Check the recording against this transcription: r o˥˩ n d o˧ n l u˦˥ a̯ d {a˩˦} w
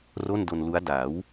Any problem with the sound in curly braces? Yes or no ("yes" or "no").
no